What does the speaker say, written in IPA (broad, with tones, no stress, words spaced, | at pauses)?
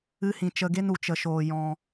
ɨ˦hĩ˧ t͡ʃə˧ɡe˦n u˨t͡ʃə˧ʃoː˧ jɔ̃˧